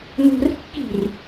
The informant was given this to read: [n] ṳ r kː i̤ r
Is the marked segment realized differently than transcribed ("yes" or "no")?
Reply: no